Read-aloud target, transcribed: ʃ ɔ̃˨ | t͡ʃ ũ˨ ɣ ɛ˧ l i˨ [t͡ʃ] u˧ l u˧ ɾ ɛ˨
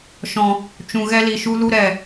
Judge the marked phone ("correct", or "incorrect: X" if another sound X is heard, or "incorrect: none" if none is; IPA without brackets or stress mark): incorrect: ʃ